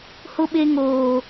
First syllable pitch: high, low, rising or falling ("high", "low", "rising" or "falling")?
high